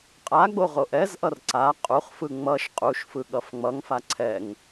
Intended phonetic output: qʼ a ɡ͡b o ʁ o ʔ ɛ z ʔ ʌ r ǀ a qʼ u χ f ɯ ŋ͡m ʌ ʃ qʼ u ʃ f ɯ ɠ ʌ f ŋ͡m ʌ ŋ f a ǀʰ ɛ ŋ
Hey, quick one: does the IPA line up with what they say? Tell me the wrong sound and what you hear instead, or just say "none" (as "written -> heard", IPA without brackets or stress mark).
none